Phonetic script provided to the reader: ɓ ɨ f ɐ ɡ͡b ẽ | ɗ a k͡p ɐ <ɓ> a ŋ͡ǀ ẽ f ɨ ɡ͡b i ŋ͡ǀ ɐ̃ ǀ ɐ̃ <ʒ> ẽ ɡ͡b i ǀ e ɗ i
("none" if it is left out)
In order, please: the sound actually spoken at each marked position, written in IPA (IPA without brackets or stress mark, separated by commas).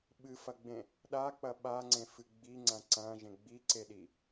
ɓ, ʒ